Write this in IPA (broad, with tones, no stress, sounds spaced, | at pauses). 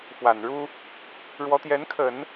f w a˨˩ n ɻ u˥ | ɻ w ɔ˧˥ t̪ j ɛ˧˥ n kʰ ə˨˩˦ n